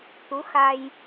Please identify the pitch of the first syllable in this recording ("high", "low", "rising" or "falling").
rising